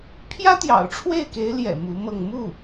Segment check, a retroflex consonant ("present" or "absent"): present